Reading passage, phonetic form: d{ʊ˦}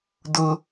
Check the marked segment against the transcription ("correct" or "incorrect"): correct